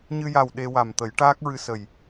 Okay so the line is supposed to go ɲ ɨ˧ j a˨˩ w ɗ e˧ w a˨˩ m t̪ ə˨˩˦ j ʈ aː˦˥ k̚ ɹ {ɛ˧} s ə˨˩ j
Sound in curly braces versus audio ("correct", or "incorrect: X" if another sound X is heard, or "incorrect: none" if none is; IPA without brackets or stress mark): incorrect: ɨ˧